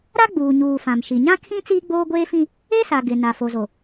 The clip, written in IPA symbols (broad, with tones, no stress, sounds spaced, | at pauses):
ɾ a˦ ɡ͡b uː˨ ɲ uː˨ f ã˨ m ʃ i˨ ɲ ã˦ kʰ ĩ˦ t͡s iː˦ ɡ͡b oː˦ ɡʷ eː˦ f ĩ˦ | e˦ s a˨ ɡ ɪ˨ n a˨ f o˨ z o˨